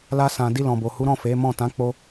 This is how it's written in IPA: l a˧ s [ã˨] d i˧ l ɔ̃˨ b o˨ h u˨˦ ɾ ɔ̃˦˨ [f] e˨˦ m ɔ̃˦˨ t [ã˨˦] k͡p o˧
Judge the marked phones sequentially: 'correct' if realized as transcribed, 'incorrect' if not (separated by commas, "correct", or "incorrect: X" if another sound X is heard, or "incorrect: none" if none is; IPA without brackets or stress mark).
correct, correct, correct